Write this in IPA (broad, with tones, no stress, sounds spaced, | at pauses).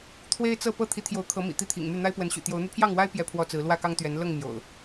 t̪ʰ w e˦ ɪ̯ t͡s ɤ˥˨ p ɤ˥˨ t̪ʰ i˨˦ t̪ʰ j o˨˦ ʊ̯ kʰ ɤ˨˦ m ḭ˨˩ t̪ i˦ t̪ʰ ḭ˨˩ ŋ m y˥˨ n̪ a˦ ɪ̯ p w ə˨˦ n ɕ y̰˨˩ t̪ j o˨˦ ʊ̯ n̪ y˧ pʰ j ɑ˥˨ ŋ w a˦ ɪ̯ p j ɛ˥˨ pʰ w ɔ˥˨ t͡s ɹ̩˨˦ l w ä˥˨ k ɑ˦ ŋ t̪ ɥ ɛ˨˦ n l ɤ˥˨ ŋ m j o̰˨˩ ʊ̯